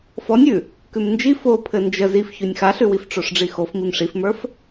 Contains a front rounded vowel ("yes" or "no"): no